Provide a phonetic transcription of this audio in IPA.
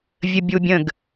vʲ ə bʲ u bʲ ə̃ ɡ

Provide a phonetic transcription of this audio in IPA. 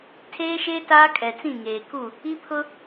tʰ eː˦ ʃ eː˦ t aː˦ kʼ ɛ˨ t͡s ĩ˦˨ ŋ eː˨ k u˦˨ | i˦ pʰ ʊ˦

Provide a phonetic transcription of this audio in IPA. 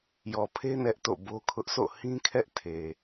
j ɔ˨ pʰ e˦ n ɛ˦ ʔ t o̰˦˨ b o˦ kʰ ʊ˦ ʔ s o̰˦˨ h ĩ˦ kʰ ɛ˦ ʔ tʰ e˨

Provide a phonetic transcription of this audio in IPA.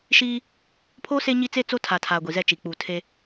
ʃ iː˦ | pʰ o˦ s e˦ ɲ i˦ t͡s e˦ t͡s o˦ tʰ a˨ tʰ a˨ ɡʷ i˨ z ɛ˦˨ t͡ʃ i˨ k͡p u˨ tʰ e˦

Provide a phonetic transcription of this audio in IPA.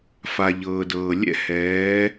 f a˩ ʎ ɤː˩ d ɤː˩ lʲ ɛ̰˦ h ɛː˩˧

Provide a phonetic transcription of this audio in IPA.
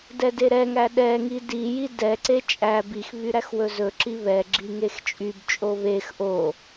d ɛ d e ɾ ɛ ŋ æ ɗ ɛ ŋ i d i j i d ɛ ǀ e t͡ʃʼ æ b i x β y ɾ æ x w ɵ z ɵ ǁ i β ɛ ɡ͡ǁ i ŋ e x t͡ʃʼ y b t͡ʃʼ o β e x ʔ o

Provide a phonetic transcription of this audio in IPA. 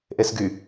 ʔ e s ɡ y

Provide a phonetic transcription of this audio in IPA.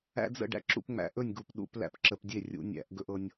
æ̰˦ d͡z ə̰˥˨ ɖ æ̰˦ ǁ ṵ˥˨ p ŋ͡m æ̰˧˩˧ ʔ ɵ˥˨ nʲ ɡ u˧˩˧ p ɗ ṵ˧˩˧ p l æ̰˥˨ p ǁ ə˧˩˧ p dʲ e˥˨ rʲ ṵ˧˩˧ nʲ æ̰˧˩˧ ʔ ɡ ɵ˦ ʔ ɤ˦ nʲ

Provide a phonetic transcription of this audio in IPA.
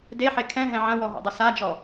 d e ħ e kʰ ɛ̃ ɦ ɛ̃ ʕ ɐ̃ w ɔ ɦ o̰ dˤ ɘ s a d͡ʒ ɔ

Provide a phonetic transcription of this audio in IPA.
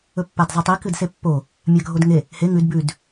ɵ pː a d zˤ a tˤ i k ɨ d s e pː o | mʲ a ɡʱ o d ŋ e | h e ŋ ʉ d b ʉ d

